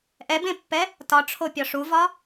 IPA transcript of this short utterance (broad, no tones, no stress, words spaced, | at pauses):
ʔɛbẽpːɛ | tɒʈ͡ʂʰopʲɒ ʂuvɒ